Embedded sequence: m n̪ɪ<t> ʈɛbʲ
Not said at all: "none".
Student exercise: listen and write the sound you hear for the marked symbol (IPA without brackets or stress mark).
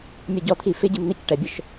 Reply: c